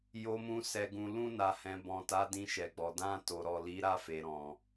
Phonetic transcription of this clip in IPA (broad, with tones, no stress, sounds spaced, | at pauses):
j o˨ m ũ˨ s ɛ˨ ɡ ũ˨ l ũ˧ n a˨ h ɛ̃˨ b ɔ̃˨ t a˨˦ d ĩ˧ ʃ ɛ˨ ɡ͡b ɔ˨ d ã˧ t o˨ ɾ ɔ˨ l i˨˦ ɾ a˦˨ f e˨ ɾ ɔ̃˨